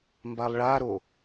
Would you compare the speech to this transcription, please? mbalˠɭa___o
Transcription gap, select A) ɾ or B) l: A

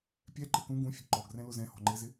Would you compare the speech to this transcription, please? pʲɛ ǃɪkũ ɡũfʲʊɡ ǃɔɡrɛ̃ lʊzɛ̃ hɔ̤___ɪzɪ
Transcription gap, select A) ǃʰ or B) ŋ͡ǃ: B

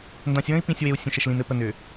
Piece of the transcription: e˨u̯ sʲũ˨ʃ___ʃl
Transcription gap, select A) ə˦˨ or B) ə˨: B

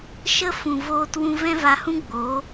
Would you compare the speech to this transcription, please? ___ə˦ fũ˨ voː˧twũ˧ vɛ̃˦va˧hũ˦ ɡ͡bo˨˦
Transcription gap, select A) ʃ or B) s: A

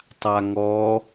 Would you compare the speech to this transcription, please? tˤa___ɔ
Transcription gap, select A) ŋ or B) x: A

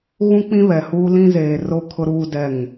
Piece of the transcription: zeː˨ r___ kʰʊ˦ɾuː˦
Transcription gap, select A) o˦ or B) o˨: A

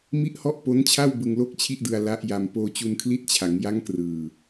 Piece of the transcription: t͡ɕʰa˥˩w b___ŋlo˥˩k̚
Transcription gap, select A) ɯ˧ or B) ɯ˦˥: A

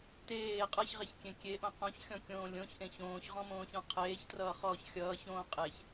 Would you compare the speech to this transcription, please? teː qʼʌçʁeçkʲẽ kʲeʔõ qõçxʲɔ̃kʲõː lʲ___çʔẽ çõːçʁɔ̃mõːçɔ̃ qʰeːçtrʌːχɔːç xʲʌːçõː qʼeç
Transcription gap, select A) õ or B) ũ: A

